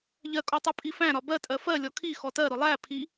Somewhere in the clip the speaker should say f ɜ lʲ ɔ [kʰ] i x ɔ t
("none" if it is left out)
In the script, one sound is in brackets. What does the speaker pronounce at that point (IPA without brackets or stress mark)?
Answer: kʰ